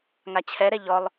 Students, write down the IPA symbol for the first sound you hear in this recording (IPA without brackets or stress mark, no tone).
ŋ